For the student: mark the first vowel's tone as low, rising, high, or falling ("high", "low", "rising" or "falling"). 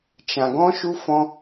low